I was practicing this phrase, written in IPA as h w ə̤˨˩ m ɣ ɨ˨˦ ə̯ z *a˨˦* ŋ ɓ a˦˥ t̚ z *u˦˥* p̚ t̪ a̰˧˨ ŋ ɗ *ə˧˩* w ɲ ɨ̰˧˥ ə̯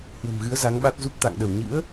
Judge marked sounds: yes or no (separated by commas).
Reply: yes, yes, yes